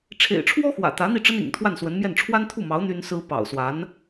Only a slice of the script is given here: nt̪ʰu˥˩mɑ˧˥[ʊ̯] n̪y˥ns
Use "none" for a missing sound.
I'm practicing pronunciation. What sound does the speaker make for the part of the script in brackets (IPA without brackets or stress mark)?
ʊ̯